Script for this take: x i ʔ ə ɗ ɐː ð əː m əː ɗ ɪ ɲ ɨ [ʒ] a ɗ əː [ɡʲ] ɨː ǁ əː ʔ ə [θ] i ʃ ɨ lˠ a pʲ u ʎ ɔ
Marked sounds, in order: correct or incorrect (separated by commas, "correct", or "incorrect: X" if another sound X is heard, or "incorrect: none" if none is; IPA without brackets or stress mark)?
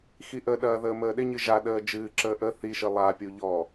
correct, incorrect: d͡ʒ, correct